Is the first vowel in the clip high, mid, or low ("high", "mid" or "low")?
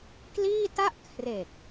high